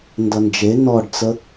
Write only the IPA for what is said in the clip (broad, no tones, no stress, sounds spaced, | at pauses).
n d ʌ n d͡ʒ e n ɔ ɖ t͡s ə